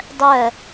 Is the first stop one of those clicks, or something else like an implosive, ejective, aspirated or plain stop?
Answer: plain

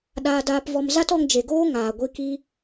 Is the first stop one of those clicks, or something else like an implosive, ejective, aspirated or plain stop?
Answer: implosive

